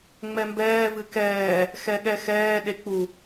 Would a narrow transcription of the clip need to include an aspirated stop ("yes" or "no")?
no